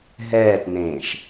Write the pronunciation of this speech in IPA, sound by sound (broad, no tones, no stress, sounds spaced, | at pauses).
ɦ ɛː t n ẽː ʃ